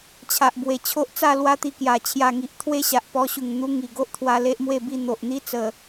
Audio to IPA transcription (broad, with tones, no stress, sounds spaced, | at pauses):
t͡ɕʰ a˨ ʔ b w e˨˩ t͡ɕʰ o˦ ʔ t͡s a˥˧ l w a˦ t̪ i˧ k j a˨˩ t͡ɕʰ j a˨˩ ŋ i˨ ʔ t̪ʰ w e˦ ɕ a˨ ʔ p ɔ˧ ɕ u˨˩ ŋ n̪ u˧ ŋ i˨˩ ɡ o˦ ʔ t̪ʰ w a˧ l e˦ ʔ m w e˥˧ b i˥˧ n̪ o˨ ʔ n̪ i˦ t͡s ə˨˩